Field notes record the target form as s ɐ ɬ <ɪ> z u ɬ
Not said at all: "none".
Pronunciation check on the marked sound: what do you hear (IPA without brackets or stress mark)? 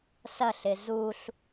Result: ɪ